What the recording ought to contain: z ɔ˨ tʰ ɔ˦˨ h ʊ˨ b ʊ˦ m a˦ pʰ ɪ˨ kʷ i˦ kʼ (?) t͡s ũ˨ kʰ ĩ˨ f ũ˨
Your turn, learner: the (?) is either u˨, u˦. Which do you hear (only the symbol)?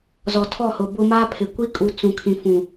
u˨